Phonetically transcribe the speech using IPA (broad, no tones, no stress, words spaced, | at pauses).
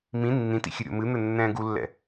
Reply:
mĩ nːĩtḭ xʲɘɾʲo̰mɨn̪ɘ nːɛ̃ːɡulːɛ̰